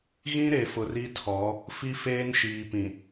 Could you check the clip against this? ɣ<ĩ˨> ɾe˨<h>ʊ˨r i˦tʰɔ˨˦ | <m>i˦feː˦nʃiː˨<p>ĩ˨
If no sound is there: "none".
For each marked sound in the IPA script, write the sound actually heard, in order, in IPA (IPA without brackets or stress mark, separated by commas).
ĩ˦, f, f, p